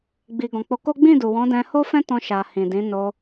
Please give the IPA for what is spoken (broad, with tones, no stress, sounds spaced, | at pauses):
ɡ͡b i˨ ɡ ɔ̃˨ k͡p o˨˦ k o˦ ɡ͡b ĩ˦˨ d u˨ w ɔ̃˨˦ d ɛ̃˧ h o˦ f ɛ̃˦ t ɔ̃˧ ʃ a˨ h ĩ˨ d ĩ˨˦ n o˧